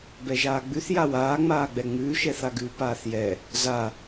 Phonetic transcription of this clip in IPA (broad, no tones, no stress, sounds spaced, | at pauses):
b ɛ ʒ aː ɡ͡b ʉ θ j a w aː ŋ͡m aː ɡ͡b ɛ ŋ͡m ʉː ʃ ɛ θ a ɡ ʉ p aː θ j ɛ | z a